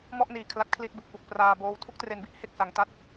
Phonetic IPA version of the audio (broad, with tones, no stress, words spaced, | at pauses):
mɔ˥˩ʔniː˧ kʰla˦˥t̚kʰli˦˥t̚bu˨˩k̚ pu˨˩k̚praː˧boː˦˥w tʰu˦˥k̚tre˧nbi˥˩ʔ he˥˩k̚sa˨˩ŋta˦˥t̚